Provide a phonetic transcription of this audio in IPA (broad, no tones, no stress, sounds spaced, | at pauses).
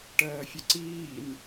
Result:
ʈ ɜː fʲ ə ǀ iː n